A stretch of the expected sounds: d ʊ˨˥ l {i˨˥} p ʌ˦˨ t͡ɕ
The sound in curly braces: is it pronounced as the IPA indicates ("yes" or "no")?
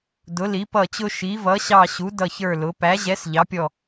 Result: yes